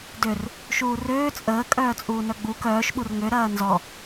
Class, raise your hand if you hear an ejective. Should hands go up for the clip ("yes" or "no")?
yes